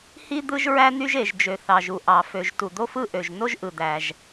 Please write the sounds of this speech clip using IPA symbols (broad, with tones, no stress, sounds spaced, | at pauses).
h i˥ d̪ ɯ˥ ʒ ɹ æ˥ n̪ y˥ ʒ e˩ ʒ d͡ʒ ø˩ θ ɑ˩ ʒ u˩ ʔ ɑ˩ f ø˩ ʒ t u˩ d̪ o˥ f ɯ˥ ʔ ø˩ ʒ n o˥ ʒ ʔ ɯ˩ d̪ æ˩ ʒ